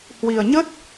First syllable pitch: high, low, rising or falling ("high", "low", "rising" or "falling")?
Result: low